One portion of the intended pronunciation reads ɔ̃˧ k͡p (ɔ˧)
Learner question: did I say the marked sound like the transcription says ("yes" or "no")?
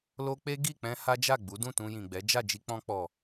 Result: no